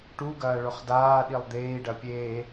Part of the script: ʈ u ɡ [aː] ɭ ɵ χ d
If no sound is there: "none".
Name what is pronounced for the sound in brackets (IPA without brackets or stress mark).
ɐː